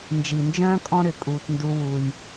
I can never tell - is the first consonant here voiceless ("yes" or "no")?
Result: no